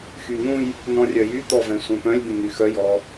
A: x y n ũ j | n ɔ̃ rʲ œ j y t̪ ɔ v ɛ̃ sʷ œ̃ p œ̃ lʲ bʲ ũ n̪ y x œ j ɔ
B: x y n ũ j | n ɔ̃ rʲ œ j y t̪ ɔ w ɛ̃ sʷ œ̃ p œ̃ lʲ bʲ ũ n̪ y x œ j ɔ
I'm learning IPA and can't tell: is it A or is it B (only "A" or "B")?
A